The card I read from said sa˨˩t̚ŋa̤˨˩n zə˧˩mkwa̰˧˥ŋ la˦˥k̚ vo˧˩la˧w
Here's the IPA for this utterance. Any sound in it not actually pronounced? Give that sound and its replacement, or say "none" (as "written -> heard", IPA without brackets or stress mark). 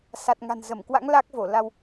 none